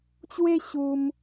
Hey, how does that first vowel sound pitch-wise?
high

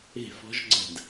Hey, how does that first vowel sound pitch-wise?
falling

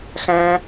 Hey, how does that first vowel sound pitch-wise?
high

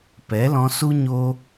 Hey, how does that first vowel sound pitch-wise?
rising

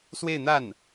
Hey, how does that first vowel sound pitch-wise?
falling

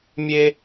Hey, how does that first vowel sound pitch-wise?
high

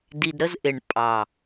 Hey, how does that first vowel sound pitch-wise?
low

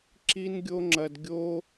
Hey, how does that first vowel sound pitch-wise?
high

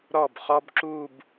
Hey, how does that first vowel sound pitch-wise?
falling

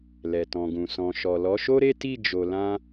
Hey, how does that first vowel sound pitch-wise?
low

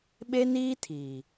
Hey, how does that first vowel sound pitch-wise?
high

